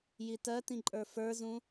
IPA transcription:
j i t ɜ t ĩ ǃʼ ə˞ f ə˞ z ũ

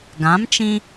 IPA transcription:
ɡ ã˨˦ m t͡ʃ ĩ˧

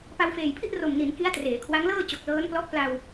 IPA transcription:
p a˧ w f eː˨˩ j pʰ i˥˩ ʔ r o˨˩ m n i˩˦ n k i˦˥ a̯ t r eː˩˦ kʰ w a˦˥ ŋ l ɤː˥˩ t͡ɕ o˨˩ k̚ l ɤː˦˥ n p l ɔ˦˥ ʔ p l a˧ w

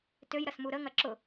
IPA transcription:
t ø j ɾ ɐ s m u ɾ ə ŋ ɐ ǁ ʊ

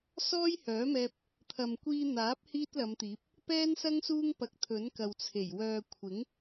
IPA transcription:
s ɔː˥ j h œː˨˥ m ɛː˧ p̚ | t̪ʰ ɐ˨ m kʷ iː˧ n̪ aː˨˥ p̚ h iː˥ t̚ l ɐ˨˧ m t̪ iː˨˥ p̚ | p ɛː˥ n s ɐ˥ ŋ s uː˥ ŋ p ɐ˨ k̚ t̪ʰ ɵ˨˥ n k ɐ˨ w t͡sʰ e˨˩ j w œː˨ kʷʰ ɪ˨˥ ŋ

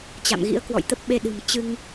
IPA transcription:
t͡ɕ a̰˧˨ m ɣ ḭ˧˥ ə̯ k w ɔ̰˧˨ j t̪ ə˦˥ p̚ ɓ e˧ ɗ ɨ̤˨˩ m t͡ɕ ɨ˧ ŋ

